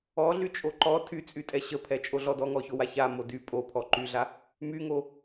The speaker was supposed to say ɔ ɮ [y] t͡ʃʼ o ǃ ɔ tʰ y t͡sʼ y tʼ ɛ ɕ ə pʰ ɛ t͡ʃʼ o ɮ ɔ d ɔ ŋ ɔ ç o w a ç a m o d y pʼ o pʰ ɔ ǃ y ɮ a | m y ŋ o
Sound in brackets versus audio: correct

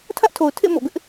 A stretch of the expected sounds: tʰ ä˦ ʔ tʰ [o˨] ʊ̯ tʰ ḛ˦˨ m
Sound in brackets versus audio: correct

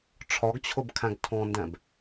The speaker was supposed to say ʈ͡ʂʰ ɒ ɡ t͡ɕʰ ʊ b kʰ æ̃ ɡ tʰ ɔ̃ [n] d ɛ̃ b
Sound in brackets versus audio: correct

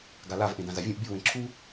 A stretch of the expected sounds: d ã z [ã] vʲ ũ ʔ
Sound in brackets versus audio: incorrect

